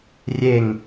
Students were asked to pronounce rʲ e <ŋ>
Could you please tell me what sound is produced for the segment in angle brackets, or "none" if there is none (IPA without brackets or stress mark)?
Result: ŋ